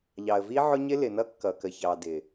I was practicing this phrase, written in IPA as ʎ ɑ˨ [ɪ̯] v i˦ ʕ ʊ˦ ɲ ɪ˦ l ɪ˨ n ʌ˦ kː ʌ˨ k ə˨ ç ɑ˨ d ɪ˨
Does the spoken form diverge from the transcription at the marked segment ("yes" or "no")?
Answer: yes